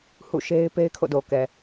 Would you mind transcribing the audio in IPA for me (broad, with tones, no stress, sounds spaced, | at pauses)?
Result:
h ṵ˦˨ ʃ e˦ ɪ̯ p e˦ ɪ̯ kʰ o̰˦˨ d o˨ k ɛ˨